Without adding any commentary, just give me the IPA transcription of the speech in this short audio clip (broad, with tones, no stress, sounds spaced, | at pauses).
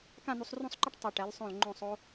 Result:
k ã˥˧ n̪ u˧ sˤ r ũ˥˧ sˤ ǃ ɯ˥ ʈ tˤ a˧˩ ʈ ɛ˩˧ l sˤ õ˧˩ l ŋ͡ǃ õ˧˩ sˤ o˧